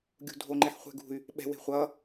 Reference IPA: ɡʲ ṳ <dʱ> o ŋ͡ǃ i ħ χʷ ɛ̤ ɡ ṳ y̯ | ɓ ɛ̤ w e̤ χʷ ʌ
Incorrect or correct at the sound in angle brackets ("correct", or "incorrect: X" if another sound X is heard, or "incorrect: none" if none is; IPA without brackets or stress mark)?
correct